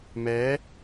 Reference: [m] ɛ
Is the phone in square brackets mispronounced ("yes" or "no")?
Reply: no